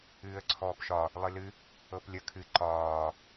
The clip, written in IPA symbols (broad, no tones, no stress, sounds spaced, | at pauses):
ɨː ə̯ ǀʰ ɔː p ʃ ɒ | lˠ ɨ l ɨ | ɤ p lʲ ə kʰ ɨ ǃ ɒː